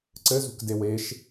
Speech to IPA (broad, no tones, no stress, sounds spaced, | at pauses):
ǀ ɘ z ṳ k d e w e ʃ